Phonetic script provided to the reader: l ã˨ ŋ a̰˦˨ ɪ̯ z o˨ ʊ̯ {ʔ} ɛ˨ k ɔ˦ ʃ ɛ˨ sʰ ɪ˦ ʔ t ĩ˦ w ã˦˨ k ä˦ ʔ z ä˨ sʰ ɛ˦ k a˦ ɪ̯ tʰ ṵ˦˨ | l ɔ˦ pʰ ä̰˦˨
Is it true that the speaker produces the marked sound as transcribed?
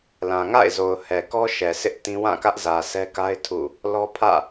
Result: no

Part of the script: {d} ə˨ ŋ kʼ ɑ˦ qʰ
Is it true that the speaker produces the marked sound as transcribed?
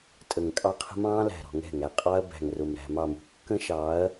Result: no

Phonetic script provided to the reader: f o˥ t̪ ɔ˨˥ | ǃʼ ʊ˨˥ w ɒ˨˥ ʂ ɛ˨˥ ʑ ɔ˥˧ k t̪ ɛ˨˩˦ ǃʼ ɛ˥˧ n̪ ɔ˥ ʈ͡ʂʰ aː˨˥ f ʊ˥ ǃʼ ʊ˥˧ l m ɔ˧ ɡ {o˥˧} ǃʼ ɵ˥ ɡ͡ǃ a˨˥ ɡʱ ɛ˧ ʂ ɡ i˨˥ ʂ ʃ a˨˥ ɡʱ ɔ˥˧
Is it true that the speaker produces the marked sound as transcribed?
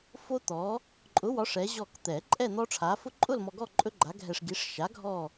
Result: no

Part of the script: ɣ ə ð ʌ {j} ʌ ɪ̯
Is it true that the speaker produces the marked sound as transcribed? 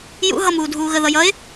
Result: yes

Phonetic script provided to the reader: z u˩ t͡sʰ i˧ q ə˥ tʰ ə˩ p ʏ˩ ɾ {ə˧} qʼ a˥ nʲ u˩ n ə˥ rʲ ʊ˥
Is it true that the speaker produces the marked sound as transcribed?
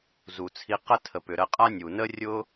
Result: yes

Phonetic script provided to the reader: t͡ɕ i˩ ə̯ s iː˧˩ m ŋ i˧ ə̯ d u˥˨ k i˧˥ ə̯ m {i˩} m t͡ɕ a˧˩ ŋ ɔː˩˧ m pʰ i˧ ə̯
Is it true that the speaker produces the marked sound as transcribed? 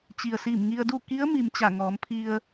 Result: yes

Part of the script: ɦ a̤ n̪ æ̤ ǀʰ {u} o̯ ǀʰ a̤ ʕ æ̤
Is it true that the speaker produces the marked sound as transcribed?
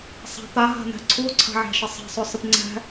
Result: yes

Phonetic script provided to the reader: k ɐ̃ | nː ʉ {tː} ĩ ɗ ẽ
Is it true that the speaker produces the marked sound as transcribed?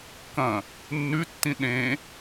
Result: yes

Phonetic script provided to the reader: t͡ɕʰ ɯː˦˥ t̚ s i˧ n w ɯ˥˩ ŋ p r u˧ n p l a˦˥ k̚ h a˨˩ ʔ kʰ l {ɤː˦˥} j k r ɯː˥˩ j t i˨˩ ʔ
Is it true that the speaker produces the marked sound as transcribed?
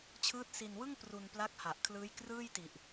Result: no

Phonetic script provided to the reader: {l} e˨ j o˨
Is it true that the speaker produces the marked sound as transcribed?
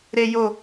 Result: no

